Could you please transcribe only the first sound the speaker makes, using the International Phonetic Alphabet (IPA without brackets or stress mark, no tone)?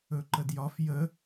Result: ɵ